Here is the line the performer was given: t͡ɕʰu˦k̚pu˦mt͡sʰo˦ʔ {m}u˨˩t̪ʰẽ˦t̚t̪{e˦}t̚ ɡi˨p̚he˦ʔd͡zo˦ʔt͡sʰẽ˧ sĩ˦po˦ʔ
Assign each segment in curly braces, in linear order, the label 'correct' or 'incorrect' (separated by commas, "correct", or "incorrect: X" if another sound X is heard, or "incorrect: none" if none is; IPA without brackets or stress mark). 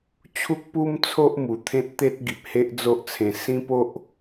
correct, correct